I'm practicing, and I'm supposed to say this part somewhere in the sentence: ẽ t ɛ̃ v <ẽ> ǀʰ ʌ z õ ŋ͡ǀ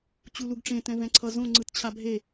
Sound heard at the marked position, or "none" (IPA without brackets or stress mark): ɛ̃